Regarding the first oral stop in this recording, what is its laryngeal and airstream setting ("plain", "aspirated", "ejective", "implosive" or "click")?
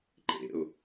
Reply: click